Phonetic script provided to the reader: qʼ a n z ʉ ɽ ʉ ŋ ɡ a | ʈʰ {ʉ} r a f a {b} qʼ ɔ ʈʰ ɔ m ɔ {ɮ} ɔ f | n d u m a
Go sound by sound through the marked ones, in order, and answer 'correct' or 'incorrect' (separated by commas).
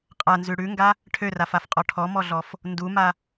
incorrect, incorrect, correct